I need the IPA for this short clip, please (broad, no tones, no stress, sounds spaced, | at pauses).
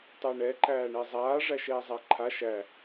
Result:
tˤ ɛ ɳ ɛ ǃ æː ɳ ɛ zˤ aː ʐ æ ʃ ɛː zˤ æ ǃʰ a ʃ æ